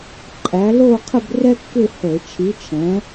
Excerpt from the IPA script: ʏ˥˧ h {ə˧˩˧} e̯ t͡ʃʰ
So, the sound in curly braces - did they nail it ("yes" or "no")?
yes